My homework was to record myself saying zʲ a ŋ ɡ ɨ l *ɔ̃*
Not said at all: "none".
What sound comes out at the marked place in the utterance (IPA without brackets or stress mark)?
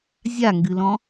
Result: ɔ̃